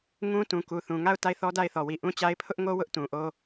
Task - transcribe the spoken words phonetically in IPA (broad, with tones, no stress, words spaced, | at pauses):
ŋũ˦ tũ˨ku˨θũ˨ ŋa˦˨ʊ̯ ta˦˨ɪ̯θɔ˦da˦˨ɪ̯θɔ˨ wi˨ʔũ˦t͡ɕa˦ɪ̯ pʰʊ˦ʔŋo˦ wʊ˦ʔtũ˨ʔo˦